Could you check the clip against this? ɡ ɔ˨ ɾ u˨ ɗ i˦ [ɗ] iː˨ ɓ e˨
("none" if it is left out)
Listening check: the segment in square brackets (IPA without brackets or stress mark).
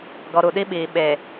ɓ